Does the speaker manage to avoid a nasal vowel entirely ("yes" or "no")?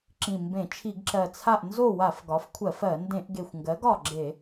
no